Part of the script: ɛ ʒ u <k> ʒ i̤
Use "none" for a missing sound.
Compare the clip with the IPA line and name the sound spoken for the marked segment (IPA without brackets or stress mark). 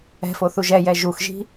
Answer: x